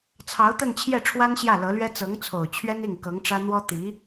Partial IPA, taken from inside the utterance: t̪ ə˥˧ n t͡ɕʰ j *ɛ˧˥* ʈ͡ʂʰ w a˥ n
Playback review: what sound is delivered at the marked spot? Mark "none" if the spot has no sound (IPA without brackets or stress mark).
ɛ˥˩